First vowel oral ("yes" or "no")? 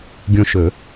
no